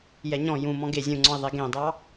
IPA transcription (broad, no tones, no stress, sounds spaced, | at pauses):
j ɛ ɲ ɔ̃ j ũ m ɔ̃ ɡ e zʲ ũ ŋ͡ǀ ɔ̃ i̯ ðˤ e ɡ ẽ dˤ ɑ